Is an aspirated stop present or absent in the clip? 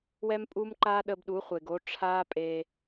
present